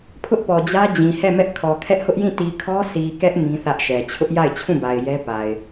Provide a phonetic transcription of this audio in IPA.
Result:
pʰ ʊ˦ ʔ p ɔ˨ d͡ʑ ä˦ d͡ʑ ĩ˨ h ɛ˦˨ m ɛ˦ ʔ kʰ ɔ˨ kʰ ɛ˦ ʔ h ʊ˦ ʔ j ĩ˦˨ t i˨ kʰ ɔ˦ sʰ i˨ k ɛ˦ ʔ m ĩ˦ θ ä˦ ʔ ʃ ɛ˨ t͡ɕʰ ʊ˦ ʔ j a˦˨ ɪ̯ t͡ɕʰ ũ˦˨ b a˨ ɪ̯ j ɛ˦ p a˨ ɪ̯

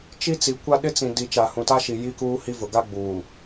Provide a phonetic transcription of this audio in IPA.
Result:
t͡ʃ i˦ t͡s i˨ kʷ a˦ ɗ ɪ˦ t͡s ĩ˨ d i˨ t͡ʃ a˨ h ũ˨ t a˦ ʃ i˨ j i˦ k uː˦ h i˦ v ʊ˨ ɡ a˦ ɡ͡b uː˨

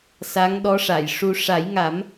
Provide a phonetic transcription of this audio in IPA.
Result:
s a˧˥ ŋ ɗ ɔ˧˥ ʂ a˨˩˨ j ʂ u˧ ʂ a˨˩˦ j ŋ a˨˩˦ m

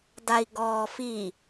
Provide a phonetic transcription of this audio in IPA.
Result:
d a i̯ ɡ ɔː f i

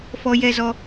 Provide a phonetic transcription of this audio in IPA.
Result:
f ɔ˦ j ɛ˦ z ɔ˦

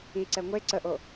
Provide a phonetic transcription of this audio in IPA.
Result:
i ǀ ɛ ŋʷ e ǀ ə ʔ o

